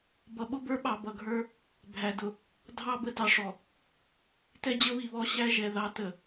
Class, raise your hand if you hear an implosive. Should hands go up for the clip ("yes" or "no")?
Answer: yes